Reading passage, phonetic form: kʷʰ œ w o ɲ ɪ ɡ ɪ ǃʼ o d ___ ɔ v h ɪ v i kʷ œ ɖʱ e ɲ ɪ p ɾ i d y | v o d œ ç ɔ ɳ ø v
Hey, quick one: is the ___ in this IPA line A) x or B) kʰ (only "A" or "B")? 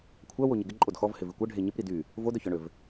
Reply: A